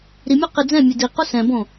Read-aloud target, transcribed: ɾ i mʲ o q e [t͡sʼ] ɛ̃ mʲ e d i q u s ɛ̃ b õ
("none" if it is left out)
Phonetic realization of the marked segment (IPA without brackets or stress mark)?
d͡z